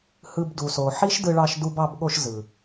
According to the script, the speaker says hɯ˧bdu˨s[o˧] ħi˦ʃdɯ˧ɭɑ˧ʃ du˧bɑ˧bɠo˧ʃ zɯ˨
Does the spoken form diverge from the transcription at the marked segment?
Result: yes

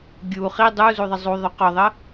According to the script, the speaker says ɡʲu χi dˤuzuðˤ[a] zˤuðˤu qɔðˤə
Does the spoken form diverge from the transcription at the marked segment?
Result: yes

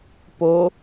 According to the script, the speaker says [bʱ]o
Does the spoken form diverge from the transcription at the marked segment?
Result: yes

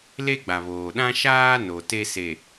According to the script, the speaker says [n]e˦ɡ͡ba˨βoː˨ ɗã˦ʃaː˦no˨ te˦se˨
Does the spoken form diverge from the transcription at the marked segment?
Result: yes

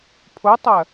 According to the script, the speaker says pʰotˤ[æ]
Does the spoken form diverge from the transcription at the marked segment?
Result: yes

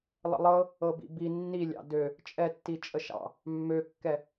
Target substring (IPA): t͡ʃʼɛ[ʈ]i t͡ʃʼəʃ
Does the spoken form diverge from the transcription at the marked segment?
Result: yes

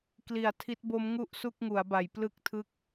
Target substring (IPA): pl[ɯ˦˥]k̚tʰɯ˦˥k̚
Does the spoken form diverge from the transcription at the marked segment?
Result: no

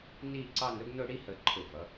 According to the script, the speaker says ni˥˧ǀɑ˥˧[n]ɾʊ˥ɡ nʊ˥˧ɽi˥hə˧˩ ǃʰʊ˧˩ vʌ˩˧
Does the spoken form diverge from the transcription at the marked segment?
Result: no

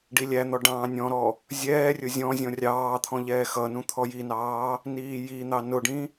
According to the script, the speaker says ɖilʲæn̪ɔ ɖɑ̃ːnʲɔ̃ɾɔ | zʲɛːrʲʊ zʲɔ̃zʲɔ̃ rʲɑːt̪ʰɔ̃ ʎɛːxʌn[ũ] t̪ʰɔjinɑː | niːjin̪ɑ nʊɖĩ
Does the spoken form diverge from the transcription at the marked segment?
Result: no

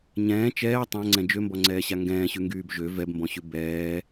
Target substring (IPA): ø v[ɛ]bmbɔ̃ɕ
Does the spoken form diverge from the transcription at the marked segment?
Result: no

